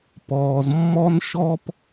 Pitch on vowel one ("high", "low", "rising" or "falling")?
low